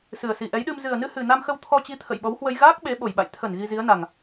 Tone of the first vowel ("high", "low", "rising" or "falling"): low